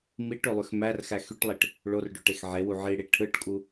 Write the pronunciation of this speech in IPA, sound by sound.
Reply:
miʈ ølˠyxmærxæ xyʈlˠiʈ | ɭorɖø ʈexʕewu ʕiɽi ʈʰɯʈkʼu

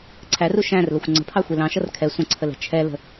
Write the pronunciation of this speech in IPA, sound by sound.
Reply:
ǀʰæru ʃæ̃rləxʷ ŋ͡ǀə̤pʰɑxʷi lɑ̃ʃʌr kʰɛ sʷə̃ǀʰəlɛ̤ t͡ʃʰɛlə̤

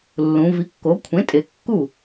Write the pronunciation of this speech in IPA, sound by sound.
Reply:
lːũ˩˧vi˩˥kːo˩˥ kʷʰẽ˩˥tʼe˩˧kːu˥˩

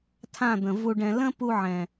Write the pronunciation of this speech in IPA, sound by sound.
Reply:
tʰã˦˨d̪ə̃˨ vu˧ɖɛ̃˧ lə̃˦ pu˧ʕɛ̃˨

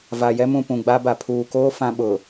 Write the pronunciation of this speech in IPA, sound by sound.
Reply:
va˨jɛ˦mũ˨ pũ˨ɡ͡ba˦ba˨ pʰuː˨koː˦ fã˦ɓʊ˨

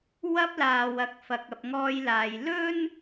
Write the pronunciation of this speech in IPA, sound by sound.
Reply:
wɐ˥p̚laː˨w ɐ˨˥k̚fɐ˨k̚ɐ˨p̚ ŋɔː˧jlaː˨j lɵ˥n

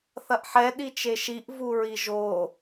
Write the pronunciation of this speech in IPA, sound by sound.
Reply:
θɐʔħɛ ɗit͡ʃeʃiʔ vuɹiʒo

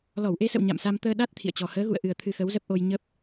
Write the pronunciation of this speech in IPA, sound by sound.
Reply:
lɔ˧˩wʔe˧sə̰˧˨w ɲa̰˧˨msa˧mt̪əː˧ɗa˦˥t̚ t̪ʰḭ˧˨ə̯t͡ɕɔ˨˩ həː˨˦ɣṵ˧˨ə̯ʔɨ˨˩ə̯ t̪ʰɨ˧xə˨˦wzə˦˥p̚ʔo˧j ɲə˦˥p̚

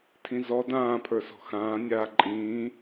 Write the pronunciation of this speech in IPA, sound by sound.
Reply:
tʰĩzɔ dãːpʰə˞ sɔ̤xãː nʲaːǃʼĩː

